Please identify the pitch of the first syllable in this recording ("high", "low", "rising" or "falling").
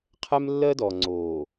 high